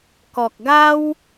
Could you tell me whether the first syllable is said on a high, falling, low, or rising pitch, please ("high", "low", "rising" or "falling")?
low